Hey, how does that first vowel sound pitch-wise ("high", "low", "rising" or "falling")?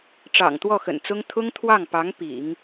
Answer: low